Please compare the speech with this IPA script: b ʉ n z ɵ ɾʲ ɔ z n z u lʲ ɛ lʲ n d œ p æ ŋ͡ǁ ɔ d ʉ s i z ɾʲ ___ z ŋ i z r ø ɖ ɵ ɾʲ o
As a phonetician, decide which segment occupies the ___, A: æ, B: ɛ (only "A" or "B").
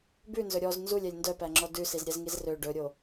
B